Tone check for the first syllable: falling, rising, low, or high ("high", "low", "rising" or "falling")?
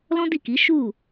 high